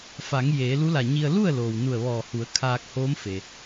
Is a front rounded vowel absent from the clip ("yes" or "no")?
yes